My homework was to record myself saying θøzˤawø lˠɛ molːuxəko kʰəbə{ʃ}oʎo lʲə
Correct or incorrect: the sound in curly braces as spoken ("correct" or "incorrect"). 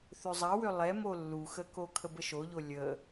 correct